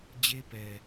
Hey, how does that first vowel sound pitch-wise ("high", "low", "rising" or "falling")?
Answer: high